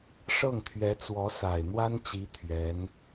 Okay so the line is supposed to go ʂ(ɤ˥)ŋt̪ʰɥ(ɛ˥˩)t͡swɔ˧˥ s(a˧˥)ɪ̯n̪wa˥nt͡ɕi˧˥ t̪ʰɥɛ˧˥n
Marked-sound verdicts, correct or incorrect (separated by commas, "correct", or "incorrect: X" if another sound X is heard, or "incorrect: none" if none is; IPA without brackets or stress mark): incorrect: ɤ˥˩, incorrect: ɛ˧˥, incorrect: a˨˩